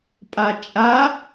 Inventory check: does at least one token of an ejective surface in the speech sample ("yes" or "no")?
yes